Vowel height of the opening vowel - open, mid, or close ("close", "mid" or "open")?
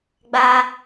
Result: open